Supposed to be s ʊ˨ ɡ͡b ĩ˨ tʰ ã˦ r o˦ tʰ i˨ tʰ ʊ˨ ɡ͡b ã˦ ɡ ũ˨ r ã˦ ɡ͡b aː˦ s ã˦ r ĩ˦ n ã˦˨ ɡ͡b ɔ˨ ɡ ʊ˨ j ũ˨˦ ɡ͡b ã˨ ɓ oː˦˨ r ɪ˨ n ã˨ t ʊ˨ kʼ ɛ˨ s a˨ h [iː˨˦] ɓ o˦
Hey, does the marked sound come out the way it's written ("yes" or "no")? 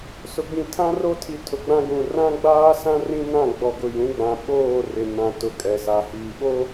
no